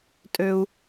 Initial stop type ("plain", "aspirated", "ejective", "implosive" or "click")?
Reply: ejective